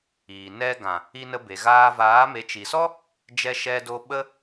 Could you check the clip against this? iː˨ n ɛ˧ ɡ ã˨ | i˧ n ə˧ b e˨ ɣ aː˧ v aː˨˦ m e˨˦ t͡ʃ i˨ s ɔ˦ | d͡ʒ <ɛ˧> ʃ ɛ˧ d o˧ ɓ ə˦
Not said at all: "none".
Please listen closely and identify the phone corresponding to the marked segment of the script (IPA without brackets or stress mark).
ɛ˧